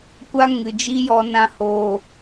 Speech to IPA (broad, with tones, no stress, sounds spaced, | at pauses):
kʷ a˦ ŋ ɨ˨ d͡ʒ i˦ j ɔ˧ n ã˧ h oː˨